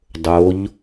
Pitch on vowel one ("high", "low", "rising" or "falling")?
rising